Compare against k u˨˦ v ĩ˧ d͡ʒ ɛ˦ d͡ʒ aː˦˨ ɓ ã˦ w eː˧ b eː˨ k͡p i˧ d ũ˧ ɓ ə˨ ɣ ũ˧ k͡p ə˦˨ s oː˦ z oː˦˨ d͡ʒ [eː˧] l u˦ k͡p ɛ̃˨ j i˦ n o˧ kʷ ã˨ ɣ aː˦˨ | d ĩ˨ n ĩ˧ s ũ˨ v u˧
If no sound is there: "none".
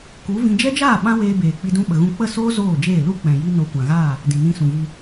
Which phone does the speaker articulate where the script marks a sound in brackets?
eː˦˨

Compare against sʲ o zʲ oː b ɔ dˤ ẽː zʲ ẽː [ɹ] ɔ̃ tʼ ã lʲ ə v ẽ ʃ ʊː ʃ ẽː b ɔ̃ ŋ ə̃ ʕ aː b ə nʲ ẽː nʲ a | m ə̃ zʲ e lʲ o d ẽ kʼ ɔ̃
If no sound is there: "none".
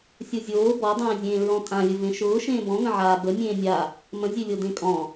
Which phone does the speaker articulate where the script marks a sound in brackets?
ɹ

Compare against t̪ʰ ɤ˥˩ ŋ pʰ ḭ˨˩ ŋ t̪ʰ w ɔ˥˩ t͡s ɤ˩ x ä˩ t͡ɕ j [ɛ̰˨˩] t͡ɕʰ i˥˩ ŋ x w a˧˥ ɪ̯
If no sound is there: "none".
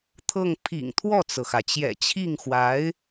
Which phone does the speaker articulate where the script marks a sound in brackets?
ɛ̰˨˩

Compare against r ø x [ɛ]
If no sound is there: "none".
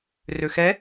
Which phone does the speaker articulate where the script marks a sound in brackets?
ɛ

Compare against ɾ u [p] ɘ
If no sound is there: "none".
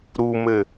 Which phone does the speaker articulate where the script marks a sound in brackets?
m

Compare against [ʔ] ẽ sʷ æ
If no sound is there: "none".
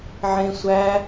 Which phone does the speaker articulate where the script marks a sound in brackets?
ʕ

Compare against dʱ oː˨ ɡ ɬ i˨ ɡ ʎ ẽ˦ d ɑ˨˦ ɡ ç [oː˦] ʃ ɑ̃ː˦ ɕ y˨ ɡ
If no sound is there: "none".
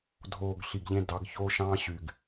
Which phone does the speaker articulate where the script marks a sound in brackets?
oː˦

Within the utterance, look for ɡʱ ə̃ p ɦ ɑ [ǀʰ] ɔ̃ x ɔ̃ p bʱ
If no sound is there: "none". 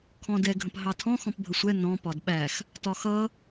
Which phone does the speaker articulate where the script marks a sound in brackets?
tʰ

